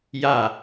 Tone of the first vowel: falling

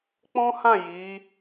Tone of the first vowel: high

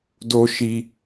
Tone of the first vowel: high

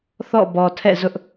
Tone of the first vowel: falling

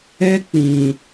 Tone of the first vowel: high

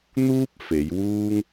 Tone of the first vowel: high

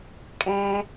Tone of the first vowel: high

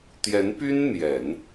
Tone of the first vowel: rising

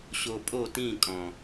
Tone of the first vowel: low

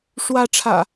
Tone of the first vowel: high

